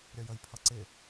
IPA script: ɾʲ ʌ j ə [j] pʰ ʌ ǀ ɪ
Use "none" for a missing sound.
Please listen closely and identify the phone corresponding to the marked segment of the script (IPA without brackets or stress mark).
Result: j